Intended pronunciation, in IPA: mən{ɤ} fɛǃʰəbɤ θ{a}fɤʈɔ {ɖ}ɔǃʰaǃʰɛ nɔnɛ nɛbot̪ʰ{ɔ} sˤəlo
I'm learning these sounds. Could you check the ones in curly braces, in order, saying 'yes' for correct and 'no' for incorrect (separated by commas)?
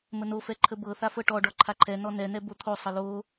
no, yes, yes, no